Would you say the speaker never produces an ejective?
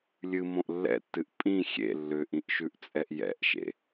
no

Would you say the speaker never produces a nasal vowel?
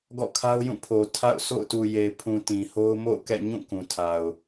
no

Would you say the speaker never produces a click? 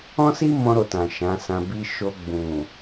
yes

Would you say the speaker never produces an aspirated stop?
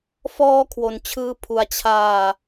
no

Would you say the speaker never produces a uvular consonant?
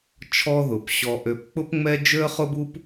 no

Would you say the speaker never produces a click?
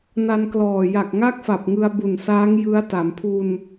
yes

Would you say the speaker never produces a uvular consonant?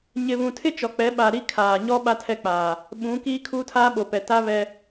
yes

